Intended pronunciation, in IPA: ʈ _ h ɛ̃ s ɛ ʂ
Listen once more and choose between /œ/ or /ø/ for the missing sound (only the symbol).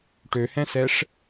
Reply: ø